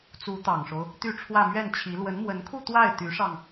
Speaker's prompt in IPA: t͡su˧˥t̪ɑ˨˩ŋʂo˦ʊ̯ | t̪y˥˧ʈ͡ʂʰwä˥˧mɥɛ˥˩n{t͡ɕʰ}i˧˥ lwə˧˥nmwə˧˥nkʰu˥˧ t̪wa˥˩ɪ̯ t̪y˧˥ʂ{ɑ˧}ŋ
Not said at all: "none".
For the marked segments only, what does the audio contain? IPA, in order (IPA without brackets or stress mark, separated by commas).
t͡ɕʰ, ɑ˧